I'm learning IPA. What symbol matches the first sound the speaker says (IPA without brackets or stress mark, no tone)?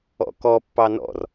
ɔ̰